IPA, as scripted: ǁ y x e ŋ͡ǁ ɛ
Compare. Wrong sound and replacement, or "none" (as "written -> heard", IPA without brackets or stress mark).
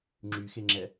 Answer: ǁ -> ŋ͡ǁ